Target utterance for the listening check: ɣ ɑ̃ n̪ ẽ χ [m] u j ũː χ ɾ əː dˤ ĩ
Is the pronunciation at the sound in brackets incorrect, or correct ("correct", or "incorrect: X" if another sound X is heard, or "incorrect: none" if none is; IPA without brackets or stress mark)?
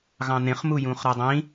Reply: correct